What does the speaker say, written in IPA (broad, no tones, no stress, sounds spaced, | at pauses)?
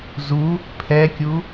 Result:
z u | pʰ ɛ kʲ u